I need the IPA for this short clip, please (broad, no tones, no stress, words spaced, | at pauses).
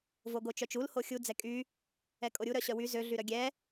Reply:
voɡot͡ʃœt͡ʃul hoxʲu d͡zɛkʼy | ɛkʼoɾʲu ɾœɕœwy zø ɮyɾœɡʲɛ